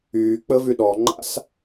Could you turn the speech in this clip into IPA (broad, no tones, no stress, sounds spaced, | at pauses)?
yː k͡p ə v y ɗ ɔ ŋ͡ǃ a̰ s